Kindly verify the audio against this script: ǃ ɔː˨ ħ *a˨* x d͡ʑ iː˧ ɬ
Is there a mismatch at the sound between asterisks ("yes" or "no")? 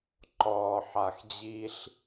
no